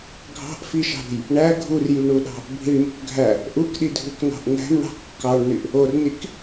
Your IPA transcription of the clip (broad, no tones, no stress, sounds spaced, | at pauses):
ɡʱ ɑ̤ ʔ f i ʃ ɑ̤ ɾ ṳ j | ɳ æ ɡʱ u r j y ɳ u ɗ ɑ̤ | bʱ i ɳ m ṳ k ɡʱ æ | ʔ u k ɗ i dʱ u k n ɑ̤ ʔ n æ̤ m ɳ ɑ̤ kː ɑ ɳ n y ʔ | o r n i k